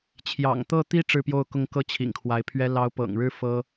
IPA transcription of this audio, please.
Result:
t͡ɕʰ j ɑ̰˨˩ ŋ t̪ ɤ˥˩ t̪ i˥ ʈ͡ʂ ɻ̩˥˧ p j o˥˧ ʊ̯ k ʊ˥˩ ŋ k ɤ˥ t͡ɕʰ ḭ˨˩ ŋ kʰ w a˧˥ ɪ̯ pʰ ɥ ɛ˥ l ɑ˧˥ ʊ̯ p ɤ̰˨˩ ŋ ɻ ɻ̩˥ f ɤ˥

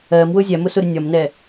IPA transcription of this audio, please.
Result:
ɜ m w ʊ zʲ æ m ʊ s ʊ ɾ ɪ nʲ ɒ m n ɛ

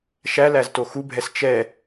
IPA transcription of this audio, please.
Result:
ʃ æ l æ z t o x u bʱ ɛ s t͡ʃ ɛ

